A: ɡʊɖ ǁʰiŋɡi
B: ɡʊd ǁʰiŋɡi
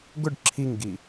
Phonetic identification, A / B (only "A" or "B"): A